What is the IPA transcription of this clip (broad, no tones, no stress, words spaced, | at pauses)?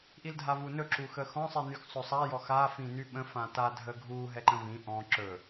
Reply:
ʔildʱavunɵ ǁuxəxɔ̃ sˤinyxsˤɵsˤa jɔxa fĩnyɓə̃ fãta dʱəɡʱu ɦɛǃə̃vĩ ʔɔ̃ ǁɵ